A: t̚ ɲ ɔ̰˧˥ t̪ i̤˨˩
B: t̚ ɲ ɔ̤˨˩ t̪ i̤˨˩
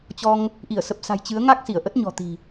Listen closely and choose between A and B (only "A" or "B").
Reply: B